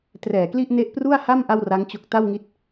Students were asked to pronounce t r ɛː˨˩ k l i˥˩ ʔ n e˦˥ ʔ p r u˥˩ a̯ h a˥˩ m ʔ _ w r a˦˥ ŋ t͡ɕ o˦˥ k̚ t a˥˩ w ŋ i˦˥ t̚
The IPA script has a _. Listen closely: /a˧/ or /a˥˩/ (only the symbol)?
a˥˩